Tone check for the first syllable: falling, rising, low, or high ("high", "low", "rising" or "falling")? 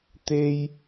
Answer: high